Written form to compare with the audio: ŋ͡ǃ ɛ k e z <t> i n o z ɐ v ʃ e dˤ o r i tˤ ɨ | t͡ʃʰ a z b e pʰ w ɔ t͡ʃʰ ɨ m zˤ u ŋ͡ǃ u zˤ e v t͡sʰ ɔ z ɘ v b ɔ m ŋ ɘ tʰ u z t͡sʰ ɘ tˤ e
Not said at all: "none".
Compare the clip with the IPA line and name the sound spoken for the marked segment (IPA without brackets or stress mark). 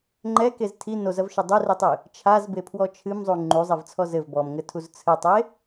tʰ